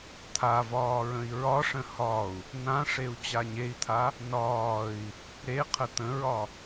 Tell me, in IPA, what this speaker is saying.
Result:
t̪ʰavɒː ɹə̃i̯ɹɒʂə̃ hɒu̯ | nãʂeu̯ t͡ɕaɲei̯t̪ʰa | nɒːi̯ | ɾeqʰə t̪ə̃ɹɒ

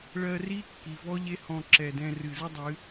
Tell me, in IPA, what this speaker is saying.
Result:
ɭɜ˧ri˦ kːi˨vɔ˦ʎe˦hɔ̃˧ ǁɛ˨dɛ̃˧ rɨ˨zɨ˦dˤɨ˨˦

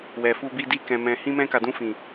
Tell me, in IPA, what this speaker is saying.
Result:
wɛ˨fu˧bi˧ di˧ kɛ̃˨ mɛ̃˨ hĩ˧mɛ̃˧ ka˨dũ˧fĩ˨

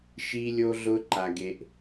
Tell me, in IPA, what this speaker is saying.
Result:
ʃi˦lʲo˦ɮʊ˦ ǃa˦ɡe˦ʔ

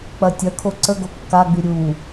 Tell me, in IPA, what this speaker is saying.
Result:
k͡pɐtʲɐkʰo ǀəɡo kːaɡ͡by ɾʲu

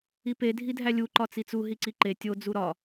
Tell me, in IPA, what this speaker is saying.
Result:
ipe dʱidʱælʲu ǃɒt͡sit͡suɦi ǀiǃe tʲo d͡zuɾɒ

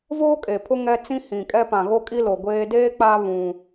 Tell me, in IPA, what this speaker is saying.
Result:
voː˦kʼe˨pʰʊ˦ ŋɛ˦ t͡sĩ˦hĩ˨kʼɛ˦ pã˨ɣo˦kʼi˦ lo˨ɡʷeː˦ deː˦k͡pa˦ βũ˦

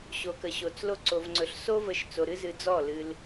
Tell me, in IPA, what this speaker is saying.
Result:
ɕo˨kə˨ɕo˨t͡s lo˧ǀo˨vŋ͡ǀɵ˨ɬ so˧və˨ʃ t͡so˨ɾɨ˧zɨ˨ d͡zɔ˦˨lɨ˧l

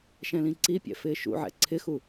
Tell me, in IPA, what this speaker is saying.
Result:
ʃɛ̃lĩǀipʲɛ̰ fɪːʃṵʕɛ̰ ǀʰɪxu

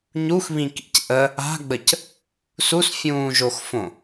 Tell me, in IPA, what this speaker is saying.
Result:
ɲuxβĩkḭc ʔə | a̤ɡ͡bəc | susfʲũːʒoxfõ

